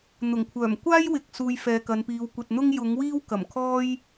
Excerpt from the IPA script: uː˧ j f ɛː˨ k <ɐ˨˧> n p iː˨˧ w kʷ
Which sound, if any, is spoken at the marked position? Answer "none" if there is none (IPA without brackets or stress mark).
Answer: ɐ˨˧